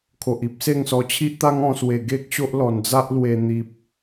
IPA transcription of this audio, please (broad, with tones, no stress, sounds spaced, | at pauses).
kʰ o˨ ʔ i˦ p̚ s e˥˧ ŋ s ɔ˧ t͡ɕʰ i˦ ʔ t̪ a˦ ŋ ɔ̃˧ s w e˨˩ ɡ e˦ k̚ ɕ o˦ ʔ l ɔ˨˩ n d͡z a˦ ʔ l w e˧ n̪ i˨ p̚